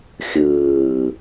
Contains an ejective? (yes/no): no